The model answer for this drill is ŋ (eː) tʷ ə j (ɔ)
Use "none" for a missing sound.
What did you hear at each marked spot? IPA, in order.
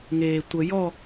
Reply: eː, ɔ

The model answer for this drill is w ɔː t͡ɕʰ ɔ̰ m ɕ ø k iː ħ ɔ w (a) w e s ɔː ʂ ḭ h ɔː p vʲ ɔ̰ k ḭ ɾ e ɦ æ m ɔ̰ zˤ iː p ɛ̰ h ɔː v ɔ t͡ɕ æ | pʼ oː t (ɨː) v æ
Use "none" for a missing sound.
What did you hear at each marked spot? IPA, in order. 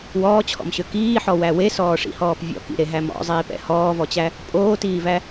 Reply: æ, iː

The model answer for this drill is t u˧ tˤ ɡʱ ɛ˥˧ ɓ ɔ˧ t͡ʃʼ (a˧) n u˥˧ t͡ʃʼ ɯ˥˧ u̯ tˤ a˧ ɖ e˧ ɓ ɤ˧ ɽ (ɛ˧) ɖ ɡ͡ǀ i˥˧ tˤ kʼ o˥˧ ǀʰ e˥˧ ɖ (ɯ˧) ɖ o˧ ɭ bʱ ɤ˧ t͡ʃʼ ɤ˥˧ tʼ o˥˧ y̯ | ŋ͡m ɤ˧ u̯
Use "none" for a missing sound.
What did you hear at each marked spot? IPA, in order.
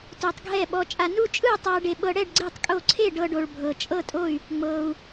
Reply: a˧, ɛ˥˧, ɤ˧

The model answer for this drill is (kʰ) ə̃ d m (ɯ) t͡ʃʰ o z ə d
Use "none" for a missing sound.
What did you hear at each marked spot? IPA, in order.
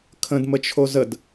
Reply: kʰ, ə

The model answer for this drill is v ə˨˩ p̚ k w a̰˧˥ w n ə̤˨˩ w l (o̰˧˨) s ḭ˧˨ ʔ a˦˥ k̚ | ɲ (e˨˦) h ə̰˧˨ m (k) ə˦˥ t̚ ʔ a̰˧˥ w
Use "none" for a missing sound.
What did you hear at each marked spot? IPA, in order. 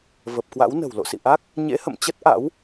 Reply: o̰˧˨, ḛ˧˥, t͡ɕ

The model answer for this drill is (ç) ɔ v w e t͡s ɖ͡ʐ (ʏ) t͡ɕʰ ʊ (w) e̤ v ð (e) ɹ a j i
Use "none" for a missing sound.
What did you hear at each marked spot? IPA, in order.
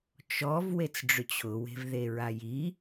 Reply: t͡ʃ, ʏ, w, e

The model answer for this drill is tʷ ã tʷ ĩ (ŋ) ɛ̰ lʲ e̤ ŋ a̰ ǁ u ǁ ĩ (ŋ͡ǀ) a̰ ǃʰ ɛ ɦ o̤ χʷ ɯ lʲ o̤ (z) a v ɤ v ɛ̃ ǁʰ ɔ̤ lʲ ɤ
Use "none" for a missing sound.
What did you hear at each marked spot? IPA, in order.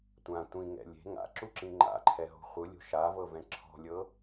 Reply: ŋ, ŋ͡ǃ, ʃ

